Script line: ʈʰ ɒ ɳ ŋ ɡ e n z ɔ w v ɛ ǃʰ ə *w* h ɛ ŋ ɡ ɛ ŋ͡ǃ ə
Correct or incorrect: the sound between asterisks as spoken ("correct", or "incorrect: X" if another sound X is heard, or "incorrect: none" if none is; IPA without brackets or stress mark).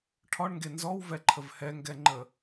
incorrect: v